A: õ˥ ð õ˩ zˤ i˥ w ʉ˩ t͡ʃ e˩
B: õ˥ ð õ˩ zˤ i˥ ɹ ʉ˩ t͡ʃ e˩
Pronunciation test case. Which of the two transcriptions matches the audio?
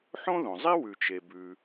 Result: A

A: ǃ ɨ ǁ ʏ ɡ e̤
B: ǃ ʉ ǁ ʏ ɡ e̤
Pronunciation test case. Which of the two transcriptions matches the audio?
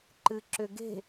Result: A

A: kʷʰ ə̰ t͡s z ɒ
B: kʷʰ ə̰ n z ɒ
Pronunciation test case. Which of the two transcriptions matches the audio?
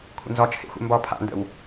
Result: B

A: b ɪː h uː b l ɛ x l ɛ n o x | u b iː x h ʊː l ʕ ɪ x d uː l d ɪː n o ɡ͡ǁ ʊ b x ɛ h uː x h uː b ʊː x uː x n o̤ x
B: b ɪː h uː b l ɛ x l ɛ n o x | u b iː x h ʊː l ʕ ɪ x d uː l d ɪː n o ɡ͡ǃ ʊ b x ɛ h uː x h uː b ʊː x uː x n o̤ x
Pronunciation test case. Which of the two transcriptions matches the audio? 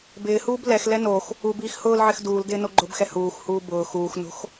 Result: B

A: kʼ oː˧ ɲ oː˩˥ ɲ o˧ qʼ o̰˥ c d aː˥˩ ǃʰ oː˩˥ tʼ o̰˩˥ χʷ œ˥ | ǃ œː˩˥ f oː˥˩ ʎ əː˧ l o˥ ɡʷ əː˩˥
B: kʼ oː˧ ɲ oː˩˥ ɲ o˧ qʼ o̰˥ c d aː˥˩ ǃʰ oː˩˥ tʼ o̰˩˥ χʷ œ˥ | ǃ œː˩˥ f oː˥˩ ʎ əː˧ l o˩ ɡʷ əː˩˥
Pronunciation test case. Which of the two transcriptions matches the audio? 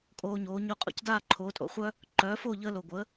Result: B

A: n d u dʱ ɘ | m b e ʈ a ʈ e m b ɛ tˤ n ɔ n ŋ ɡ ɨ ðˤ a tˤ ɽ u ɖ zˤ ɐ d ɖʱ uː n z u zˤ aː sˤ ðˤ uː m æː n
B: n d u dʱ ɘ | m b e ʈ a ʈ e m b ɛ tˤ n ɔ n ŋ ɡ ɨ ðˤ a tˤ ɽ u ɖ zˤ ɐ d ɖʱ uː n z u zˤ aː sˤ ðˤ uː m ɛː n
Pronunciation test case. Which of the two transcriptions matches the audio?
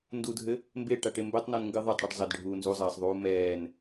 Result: B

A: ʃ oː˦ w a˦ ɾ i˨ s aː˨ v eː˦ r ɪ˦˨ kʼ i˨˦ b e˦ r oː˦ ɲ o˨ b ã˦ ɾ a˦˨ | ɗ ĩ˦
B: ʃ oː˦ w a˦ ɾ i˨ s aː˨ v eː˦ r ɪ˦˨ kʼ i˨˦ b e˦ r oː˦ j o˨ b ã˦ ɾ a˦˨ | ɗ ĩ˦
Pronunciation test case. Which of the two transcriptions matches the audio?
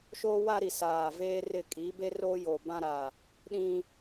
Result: B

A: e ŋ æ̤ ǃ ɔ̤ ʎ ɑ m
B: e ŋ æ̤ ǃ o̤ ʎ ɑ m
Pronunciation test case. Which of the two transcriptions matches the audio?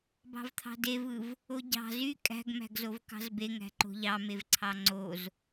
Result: B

